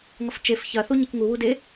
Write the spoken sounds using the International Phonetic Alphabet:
ŋ ʌ f t͡ʃ e f ç ɐ θ u ɲ e k ŋ u w u d e

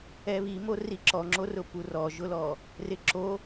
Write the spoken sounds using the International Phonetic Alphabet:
ɛ β i m o r i ǁ ɔ ŋ͡ǁ o r ʊ p u r ɔ ʒ ʊ l ɔ | r ɪ ǁ o

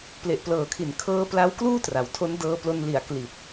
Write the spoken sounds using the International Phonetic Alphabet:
p l e˨˩ ʔ p l ɤː˨˩ kʰ i˨˩ n kʰ ɤː˦˥ p l a˦˥ w k l uː˥˩ t r a˩˦ w tʰ o˦˥ n d ɤː˧ p l o˧ n l i˨˩ a̯ k l i˨˩ t̚

